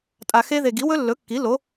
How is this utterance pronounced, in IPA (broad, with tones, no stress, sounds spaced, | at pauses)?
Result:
tʼ a˨ x e˦˥ ð e˨ ɡ i˩˥ w ɵ˦˥ lː ɵ˩˥ kː i˩˥ l o˩˥